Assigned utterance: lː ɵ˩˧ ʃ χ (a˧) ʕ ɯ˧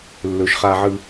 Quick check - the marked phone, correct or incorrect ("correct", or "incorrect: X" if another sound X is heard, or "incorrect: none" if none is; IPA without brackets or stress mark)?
correct